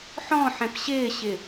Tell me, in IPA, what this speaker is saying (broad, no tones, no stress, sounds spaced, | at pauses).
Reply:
ħ ɔ̃ ħ ɛ̃ p ɕ ɪː ɕ ɪ